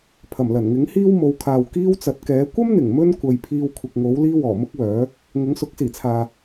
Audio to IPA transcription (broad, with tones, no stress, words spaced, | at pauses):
pʰɐ˨˩mlɐ˨˩nŋɪ˨˥ŋ hiː˥wmo˨˧wkʰaː˨w kiː˥wt͡sɐ˨˥t̚kɛː˨˥ kʷɐ˥mn̪ɪ˨˩ŋ mɵ˥nkʷɐ˨j pʰiː˧wkʷʰɪ˨k̚ŋo˨˥w liː˥wɔː˨˩ mʊ˥k̚wœː˨˥ | ŋʊ˨˥ŋsʊ˨˥k̚siː˨˩t͡sʰaː˨